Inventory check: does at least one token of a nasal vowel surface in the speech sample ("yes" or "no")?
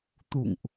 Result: no